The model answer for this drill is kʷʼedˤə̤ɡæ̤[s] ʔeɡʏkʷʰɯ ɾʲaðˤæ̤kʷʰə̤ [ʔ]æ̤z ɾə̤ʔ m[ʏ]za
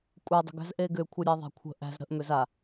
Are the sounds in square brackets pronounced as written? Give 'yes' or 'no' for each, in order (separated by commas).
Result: no, yes, yes